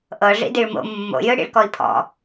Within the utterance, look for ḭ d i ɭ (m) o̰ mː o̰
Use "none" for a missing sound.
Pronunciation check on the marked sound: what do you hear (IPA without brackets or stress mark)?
m